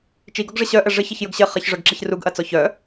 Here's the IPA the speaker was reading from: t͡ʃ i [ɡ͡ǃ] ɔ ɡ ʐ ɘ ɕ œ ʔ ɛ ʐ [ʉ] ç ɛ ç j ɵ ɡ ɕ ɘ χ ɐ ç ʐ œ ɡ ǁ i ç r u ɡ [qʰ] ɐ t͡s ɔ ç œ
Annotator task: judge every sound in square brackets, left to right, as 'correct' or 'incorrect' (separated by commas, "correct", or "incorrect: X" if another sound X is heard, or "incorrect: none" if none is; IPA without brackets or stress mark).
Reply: incorrect: ɡ, incorrect: ɘ, incorrect: ʔ